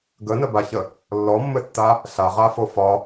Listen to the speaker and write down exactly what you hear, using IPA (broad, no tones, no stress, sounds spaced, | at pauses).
ɡ ə n ə b a ç ə | lː ɔ mː ɘ tː a | ɬ a ʁ a f o f ɒ